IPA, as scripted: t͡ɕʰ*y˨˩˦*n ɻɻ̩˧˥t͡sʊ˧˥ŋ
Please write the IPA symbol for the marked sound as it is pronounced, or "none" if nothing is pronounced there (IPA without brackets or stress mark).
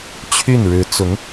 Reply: y˥˩